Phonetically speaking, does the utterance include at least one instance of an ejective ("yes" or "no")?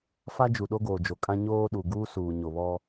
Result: yes